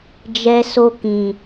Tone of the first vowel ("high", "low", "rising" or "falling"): low